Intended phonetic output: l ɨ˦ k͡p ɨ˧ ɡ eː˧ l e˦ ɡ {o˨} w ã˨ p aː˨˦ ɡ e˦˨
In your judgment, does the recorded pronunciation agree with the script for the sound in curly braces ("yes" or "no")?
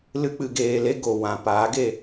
yes